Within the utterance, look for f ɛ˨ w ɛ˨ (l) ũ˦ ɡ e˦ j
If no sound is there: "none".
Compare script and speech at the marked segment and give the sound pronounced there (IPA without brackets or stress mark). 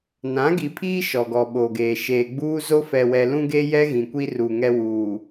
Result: l